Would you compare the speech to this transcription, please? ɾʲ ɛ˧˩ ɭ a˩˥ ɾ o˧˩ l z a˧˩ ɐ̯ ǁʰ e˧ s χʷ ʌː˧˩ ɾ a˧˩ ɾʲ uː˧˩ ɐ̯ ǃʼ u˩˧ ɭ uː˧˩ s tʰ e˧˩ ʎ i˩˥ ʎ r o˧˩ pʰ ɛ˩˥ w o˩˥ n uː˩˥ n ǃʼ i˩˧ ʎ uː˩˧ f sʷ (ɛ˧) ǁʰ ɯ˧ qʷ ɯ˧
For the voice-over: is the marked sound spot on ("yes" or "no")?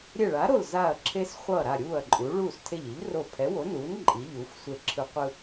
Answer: no